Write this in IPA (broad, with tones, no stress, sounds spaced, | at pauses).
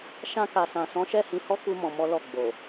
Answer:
ʃ ã˧ k a˨ s ã˨ s ɔ̃˨˦ ʃ ɛ˦˨ h ĩ˧ h ɔ˦ k u˦ m ɔ̃˧ m ɔ˦ l ɔ˦˨ ɡ͡b o˨